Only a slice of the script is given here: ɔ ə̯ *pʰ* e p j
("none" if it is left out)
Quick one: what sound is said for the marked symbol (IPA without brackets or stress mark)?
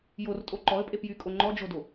pʼ